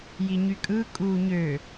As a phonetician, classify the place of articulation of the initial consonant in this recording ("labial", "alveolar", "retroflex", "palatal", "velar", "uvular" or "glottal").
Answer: palatal